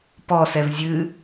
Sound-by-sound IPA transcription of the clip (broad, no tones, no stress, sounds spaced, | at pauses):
p ɔ s ɛ v zʲ ɨ